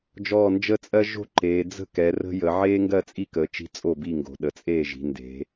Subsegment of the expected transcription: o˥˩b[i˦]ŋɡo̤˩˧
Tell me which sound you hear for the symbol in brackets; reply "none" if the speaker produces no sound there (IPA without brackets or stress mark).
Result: i˥˩